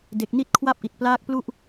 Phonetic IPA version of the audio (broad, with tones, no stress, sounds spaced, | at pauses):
d e˨˩ k̚ n i˦˥ t̚ kʰ w a˥˩ p̚ ʔ i˨˩ t̚ p l aː˦˥ k̚ p l u˥˩ ʔ